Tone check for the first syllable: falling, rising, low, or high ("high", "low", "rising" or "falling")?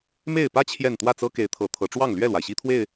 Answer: falling